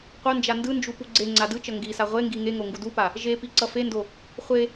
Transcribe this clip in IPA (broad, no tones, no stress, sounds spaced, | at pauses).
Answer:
qʷ ʌ n d͡ʒ a n d ɯ n d͡ʒ u p u ɡ͡ǀ e ŋ͡ǀ a d ɯ t͡ʃ ʌ ŋ ɡ i s a ʁʷ e ŋ ɡ i ŋ e ŋ o ŋ ɡ u d u p a | ʒ e p i ǀ ʌ f e n d o | χʷ e